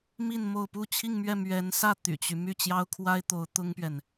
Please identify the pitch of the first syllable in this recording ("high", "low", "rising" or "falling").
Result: falling